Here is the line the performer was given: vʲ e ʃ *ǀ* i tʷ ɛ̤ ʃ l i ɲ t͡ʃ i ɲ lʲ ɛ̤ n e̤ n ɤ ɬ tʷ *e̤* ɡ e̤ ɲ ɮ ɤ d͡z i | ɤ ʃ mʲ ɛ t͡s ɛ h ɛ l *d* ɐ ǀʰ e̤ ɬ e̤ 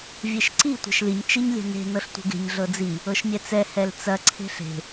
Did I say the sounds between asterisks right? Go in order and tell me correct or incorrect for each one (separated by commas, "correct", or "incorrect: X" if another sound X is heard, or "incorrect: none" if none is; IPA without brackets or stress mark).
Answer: correct, correct, incorrect: t͡s